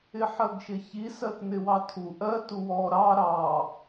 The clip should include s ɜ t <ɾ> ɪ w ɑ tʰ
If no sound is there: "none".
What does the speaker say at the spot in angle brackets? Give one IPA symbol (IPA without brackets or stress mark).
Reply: n